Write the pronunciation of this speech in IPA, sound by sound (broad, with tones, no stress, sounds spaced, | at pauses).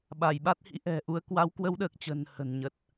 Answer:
ɓ a˧˩ j ɓ a˦˥ t̚ h ḭ˧˥ ʔ ɛ̤˨˩ ʔ u˧ ə̯ k w a˨˦ w k w ə˧ w ɗ əː˨˩ k̚ t͡ɕ ə̤˨˩ n h ə̤˨˩ n ɲ ə˨˩ t̚